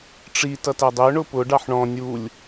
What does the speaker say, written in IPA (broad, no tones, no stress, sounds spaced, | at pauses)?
ʈ͡ʂ i t ʌ t æ dˤ i ʊ̯ ɳ ʊ p ʊ ɖ ɑ ħ ɳ ɔ̃ nʲ u lʲ